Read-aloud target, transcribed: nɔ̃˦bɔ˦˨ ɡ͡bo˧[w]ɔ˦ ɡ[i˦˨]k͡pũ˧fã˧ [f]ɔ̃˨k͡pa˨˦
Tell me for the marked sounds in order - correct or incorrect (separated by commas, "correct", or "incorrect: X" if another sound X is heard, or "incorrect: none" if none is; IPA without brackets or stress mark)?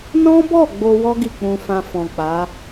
correct, correct, correct